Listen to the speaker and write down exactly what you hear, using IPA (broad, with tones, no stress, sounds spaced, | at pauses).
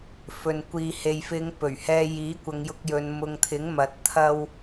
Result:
f ɵ˨ n kʷ iː˨ h e˨ j f ɪ˨˧ ŋ p ɵ˨˩ ɥ h ɛː˧ j iː˨˥ kʷ ɐ˨˧ ŋ j ʊ˧ k̚ j ɵ˨˧ n m ʊ˨ ŋ t̪ʰ ɪ˨˥ ŋ m ɐ˨ t̚ t̪ʰ ɐ˥ w